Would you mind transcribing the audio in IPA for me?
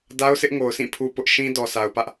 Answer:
d a˦ ʊ̯ sʰ ɪ˦ ʔ ŋ o˨ ʊ̯ s ĩ˦˨ pʰ u˦ p ʊ˦ ʔ ʃ ĩ˦ d ɔ˨ s a˨ ʊ̯ p ä˦ ʔ

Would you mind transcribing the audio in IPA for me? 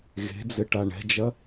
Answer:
ɣ e̤ d͡z ɘ ʈ a ɳ ɛ̤ d͡ʒ ɐ

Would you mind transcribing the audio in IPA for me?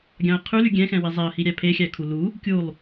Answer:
ɡʲ ɑ̃ ə̯ qʰ ʉ l y ɡʲ ɛ̃ x ɛ̃ w e zˤ ɛ ə̯ h i ɾʲ æ pʰ e xʲ æ kʰ u l u | kʲ u lˠ

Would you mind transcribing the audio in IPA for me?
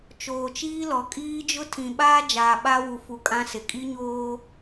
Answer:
t͡ʃ oː˨ t͡ʃ iː˦ l ɔ˨ kʼ iː˦ d͡ʒ ʊ˦ tʰ ĩ˨ ɓ aː˦ d͡ʒ aː˨ ɓ a˦ w u˨ f u˨ kʼ ã˦ s ɪ˨ kʼ i˦ ɲ oː˦

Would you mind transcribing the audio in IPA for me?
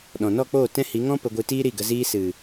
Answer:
ɗ ɔ̃˨ n ɔ˦˨ k͡p oː˦˨ t ɛ̃˦ h i˨˦ ŋ ɔ̃˦ p ə˧ ɡʷ ɨ˧ t iː˦ ɾ i˦˨ ɡ ə˧ z iː˦ s ɨ˨

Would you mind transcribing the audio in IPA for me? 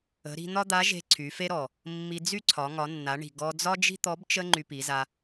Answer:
ə̤˩˧ ɾ i̤˧ n̪ ɒ˥ d̪ a˧˥ ʒ e̤˧ ǀʰ y˩˧ f e˥ ɾ ɔ˩ | mː i˧ d͡z y˥ ǀʰ ɒ˩˧ ŋ ɒ˩˧ nː a˩˧ ɳ i̤˩ ɡ ɔ˧ d͡z ɒ˥ d͡ʒ i̤˥ t̪ ɔ˧˥ b t͡ʃ ə˥ ŋ͡ǃ y˧ p i˩˧ z a˧

